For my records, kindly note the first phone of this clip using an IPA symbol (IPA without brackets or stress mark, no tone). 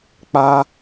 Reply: k͡p